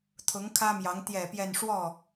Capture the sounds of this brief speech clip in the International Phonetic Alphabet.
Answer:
t̪ʰ ʊ˧˥ ŋ kʰ ä˥ m j ɑ˧˥ ŋ t̪ j ɛ˨˩ p j ɛ˥˧ n ʂ w ɔ˥˩

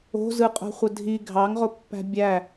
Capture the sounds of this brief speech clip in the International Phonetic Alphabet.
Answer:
o̤ z ɯ qʼ o̤ χʷ ə dʱ i ɡʱ ɑ ŋ ʁ o pː æ̤ bʲ æ

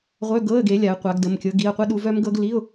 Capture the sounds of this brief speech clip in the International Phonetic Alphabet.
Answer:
ʁʷ œ˧˥˧ ɡ ɤ˧˥˧ ə̯ ɡ e˨˦ lʲ a˨˦ ə̯ qʷ a˨˦ ɡ d ə˩˧˩ m kʲ ɤ˨˦ ɡ i˩˧˩ ə̯ qʷ ə˦˥ ɗ u˨˦ v œ˦˥ m ɡ ɤ˦˥ ɡ l i˧˥˧ ʊ̯

